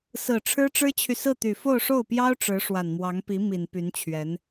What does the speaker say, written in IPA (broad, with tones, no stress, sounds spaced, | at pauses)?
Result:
s ɹ̩˨˩ ʈ͡ʂʰ ɻ̩˥ ʈ͡ʂ ɻ̩˥ t͡ɕʰ y˨ s ɹ̩˥˩ t̪ y˨˩ f o˥˧ ʊ̯ ʂ o˥˩ ʊ̯ p j ɑ˥ ʊ̯ ʈ͡ʂ ɻ̩˧˥ ʂ w a˨˩ n m w ɑ˧˥ ŋ p i˧˥ m i˨˩ n p y˧˥ n t͡ɕʰ ɥ ɛ˧˥ n